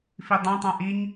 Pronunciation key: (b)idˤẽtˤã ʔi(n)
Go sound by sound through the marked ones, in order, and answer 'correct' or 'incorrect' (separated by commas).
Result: incorrect, incorrect